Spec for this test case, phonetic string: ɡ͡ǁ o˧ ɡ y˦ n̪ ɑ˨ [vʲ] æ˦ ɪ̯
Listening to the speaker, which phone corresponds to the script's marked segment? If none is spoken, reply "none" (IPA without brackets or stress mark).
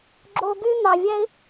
vʲ